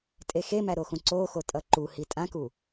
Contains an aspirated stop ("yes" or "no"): no